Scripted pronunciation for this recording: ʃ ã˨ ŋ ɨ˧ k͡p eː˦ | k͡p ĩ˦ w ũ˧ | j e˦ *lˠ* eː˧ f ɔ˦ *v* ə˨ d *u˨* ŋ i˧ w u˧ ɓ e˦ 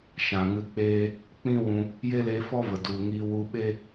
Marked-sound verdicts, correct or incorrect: incorrect: l, correct, correct

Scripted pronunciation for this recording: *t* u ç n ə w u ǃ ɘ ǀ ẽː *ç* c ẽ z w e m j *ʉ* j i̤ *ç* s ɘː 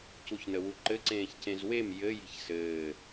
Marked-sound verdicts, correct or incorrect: incorrect: c, correct, incorrect: ɘ, correct

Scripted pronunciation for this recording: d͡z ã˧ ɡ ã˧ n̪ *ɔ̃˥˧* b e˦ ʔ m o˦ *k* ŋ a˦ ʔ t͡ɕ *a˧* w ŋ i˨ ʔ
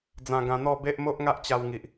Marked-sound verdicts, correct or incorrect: incorrect: ɔ˥˧, incorrect: ʔ, correct

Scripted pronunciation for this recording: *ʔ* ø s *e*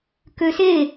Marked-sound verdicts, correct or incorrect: incorrect: k, correct

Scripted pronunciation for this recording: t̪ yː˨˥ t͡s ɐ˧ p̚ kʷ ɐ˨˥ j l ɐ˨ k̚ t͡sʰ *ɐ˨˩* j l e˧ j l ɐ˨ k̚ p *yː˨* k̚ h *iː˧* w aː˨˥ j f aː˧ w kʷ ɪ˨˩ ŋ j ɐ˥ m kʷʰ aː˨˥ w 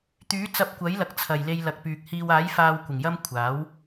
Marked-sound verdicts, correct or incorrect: correct, correct, correct

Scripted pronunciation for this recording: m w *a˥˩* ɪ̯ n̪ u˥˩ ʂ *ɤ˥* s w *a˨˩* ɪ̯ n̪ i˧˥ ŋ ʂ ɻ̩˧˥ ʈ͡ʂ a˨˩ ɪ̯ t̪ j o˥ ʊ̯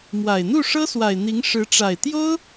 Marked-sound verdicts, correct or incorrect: incorrect: a˨˩, correct, correct

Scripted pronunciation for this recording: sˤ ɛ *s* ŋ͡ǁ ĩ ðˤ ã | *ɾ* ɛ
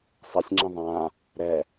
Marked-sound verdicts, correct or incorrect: incorrect: sʲ, correct

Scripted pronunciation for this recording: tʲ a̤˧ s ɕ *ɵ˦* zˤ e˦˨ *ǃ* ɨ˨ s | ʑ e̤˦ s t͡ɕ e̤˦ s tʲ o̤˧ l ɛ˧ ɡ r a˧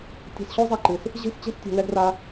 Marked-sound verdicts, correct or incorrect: incorrect: o˦, correct

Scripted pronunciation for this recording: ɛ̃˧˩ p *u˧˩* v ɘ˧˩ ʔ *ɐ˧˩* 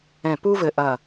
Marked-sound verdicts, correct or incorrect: incorrect: u˥, correct

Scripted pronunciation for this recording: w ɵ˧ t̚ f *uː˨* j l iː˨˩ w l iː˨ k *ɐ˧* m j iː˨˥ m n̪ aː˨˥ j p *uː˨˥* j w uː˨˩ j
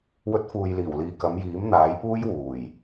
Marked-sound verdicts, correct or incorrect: correct, incorrect: ɐ˨˧, incorrect: uː˥

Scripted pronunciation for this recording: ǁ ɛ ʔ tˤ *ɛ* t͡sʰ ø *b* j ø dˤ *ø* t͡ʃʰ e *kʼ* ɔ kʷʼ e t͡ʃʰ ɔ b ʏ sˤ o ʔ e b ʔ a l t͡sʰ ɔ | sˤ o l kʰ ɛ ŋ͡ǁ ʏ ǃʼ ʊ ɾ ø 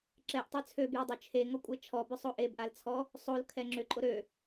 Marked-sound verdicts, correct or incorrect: incorrect: œ, correct, correct, incorrect: ŋ

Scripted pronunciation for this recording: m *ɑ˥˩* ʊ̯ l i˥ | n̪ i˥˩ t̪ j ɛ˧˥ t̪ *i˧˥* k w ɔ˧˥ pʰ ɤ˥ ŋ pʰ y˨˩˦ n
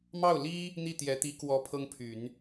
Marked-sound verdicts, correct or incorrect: correct, correct

